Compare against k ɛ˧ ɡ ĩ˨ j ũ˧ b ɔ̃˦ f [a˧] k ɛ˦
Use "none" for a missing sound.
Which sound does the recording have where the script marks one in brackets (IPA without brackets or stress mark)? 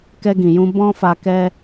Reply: a˧